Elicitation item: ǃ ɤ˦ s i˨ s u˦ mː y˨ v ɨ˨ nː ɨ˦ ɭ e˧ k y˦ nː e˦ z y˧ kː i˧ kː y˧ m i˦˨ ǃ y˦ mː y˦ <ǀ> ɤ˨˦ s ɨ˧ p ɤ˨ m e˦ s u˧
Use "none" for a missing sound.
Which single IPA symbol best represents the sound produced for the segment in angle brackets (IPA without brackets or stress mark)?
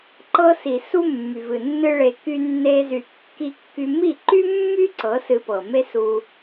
ǀ